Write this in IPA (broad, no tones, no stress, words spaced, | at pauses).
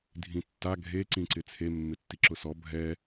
dʱĩtːa ɡʱeǀĩǀɪ t͡sʰemːɪtːi ǁʊsɔ bʱɛ